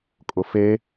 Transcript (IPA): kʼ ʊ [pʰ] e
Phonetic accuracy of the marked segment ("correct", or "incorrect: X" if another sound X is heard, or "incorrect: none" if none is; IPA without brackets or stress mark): incorrect: f